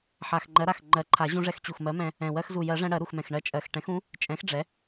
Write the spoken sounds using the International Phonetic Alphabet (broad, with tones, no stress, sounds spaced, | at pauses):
ħ a˨˩ x ŋ͡ǃ ɜ˨˥ ɾ a˨˩ x ŋ͡ǃ ɜ˨˩˦ ǃʰ a˨˩˦ ʑ ũ˧ ʐ ɛ˧ x t͡ɕ u˨˩ x m ɜ˨˥ m ɛ̃˧ | ɛ̃˨˩ w ɜ˧ x z u˨˩ j ɜ˨˩˦ ʐ ɛ̃˧ ɽ ɜ˨˩˦ ɾ u˨˩ x m ɛ̃˨˩ x ɳ ɜ˧ t͡ʃʼ ɜ˨˩ x ʈ ɛ̃˨˩˦ x ũ˨˥ | t͡ʃʼ ɛ̃˨˥ x ɖ͡ʐ ɛ˨˥